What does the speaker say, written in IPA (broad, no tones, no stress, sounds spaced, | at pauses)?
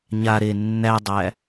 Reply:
ɲ a ɾ eː nː æ dˤ æ